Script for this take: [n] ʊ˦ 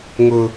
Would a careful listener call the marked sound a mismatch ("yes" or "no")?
yes